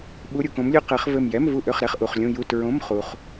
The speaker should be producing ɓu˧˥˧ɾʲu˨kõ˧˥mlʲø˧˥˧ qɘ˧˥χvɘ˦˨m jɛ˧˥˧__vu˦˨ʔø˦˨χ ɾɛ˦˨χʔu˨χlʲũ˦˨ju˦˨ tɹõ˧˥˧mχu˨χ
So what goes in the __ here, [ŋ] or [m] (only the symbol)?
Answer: m